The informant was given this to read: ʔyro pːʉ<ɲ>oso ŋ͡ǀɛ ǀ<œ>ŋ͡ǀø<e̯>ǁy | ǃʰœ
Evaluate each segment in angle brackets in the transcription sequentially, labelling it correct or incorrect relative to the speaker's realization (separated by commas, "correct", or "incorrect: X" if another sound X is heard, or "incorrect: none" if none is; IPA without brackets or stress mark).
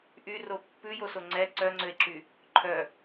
incorrect: j, correct, correct